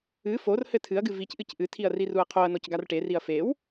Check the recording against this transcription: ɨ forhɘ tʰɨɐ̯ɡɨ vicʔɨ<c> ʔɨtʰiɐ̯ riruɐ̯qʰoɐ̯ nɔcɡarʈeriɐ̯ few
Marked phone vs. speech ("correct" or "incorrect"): correct